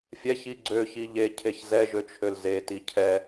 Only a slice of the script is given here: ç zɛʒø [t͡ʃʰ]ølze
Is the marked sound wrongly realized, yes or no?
no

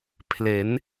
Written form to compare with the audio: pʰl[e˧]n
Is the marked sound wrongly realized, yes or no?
yes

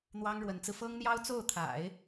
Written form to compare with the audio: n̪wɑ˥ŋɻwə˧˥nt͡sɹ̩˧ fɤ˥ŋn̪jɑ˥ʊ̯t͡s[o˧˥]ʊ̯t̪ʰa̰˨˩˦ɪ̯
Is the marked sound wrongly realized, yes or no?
yes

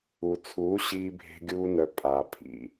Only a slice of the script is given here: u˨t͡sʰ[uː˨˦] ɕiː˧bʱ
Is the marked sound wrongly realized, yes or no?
no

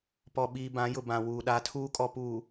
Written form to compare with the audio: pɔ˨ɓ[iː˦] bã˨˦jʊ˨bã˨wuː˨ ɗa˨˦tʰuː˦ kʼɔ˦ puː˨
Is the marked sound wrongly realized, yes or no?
yes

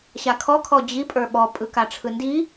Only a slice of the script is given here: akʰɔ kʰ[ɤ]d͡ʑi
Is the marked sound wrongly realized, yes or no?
yes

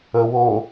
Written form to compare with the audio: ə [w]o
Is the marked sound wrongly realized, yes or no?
no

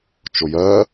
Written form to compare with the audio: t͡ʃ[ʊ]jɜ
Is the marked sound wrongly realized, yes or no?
no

